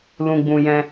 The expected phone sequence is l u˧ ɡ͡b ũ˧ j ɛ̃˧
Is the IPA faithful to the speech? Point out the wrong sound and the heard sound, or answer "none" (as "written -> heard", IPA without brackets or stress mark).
u˧ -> ũ˧